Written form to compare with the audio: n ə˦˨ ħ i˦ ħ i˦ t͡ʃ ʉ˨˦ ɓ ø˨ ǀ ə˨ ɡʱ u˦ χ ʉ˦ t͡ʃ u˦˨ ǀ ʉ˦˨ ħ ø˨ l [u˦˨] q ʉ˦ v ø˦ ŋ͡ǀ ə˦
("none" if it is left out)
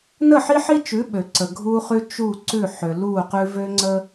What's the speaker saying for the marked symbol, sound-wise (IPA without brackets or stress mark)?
u˦˨